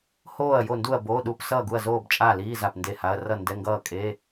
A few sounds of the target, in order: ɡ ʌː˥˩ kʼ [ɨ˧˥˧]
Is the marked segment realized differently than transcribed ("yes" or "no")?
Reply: yes